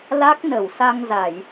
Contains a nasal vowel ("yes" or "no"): no